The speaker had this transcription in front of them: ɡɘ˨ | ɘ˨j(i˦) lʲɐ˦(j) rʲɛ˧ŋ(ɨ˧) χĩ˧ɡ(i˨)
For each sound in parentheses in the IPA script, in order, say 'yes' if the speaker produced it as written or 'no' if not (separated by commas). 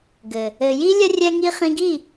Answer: yes, no, no, no